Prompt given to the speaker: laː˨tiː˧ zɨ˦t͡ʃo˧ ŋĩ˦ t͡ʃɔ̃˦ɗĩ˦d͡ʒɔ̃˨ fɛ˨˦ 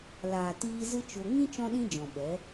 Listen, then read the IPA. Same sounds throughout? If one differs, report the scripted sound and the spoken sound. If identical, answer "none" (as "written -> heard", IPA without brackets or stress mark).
f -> ɓ